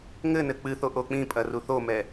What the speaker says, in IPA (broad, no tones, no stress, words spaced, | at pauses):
ŋɘnɘ k͡pɨθo ʔok͡pĩpʼɐ ruθomɛ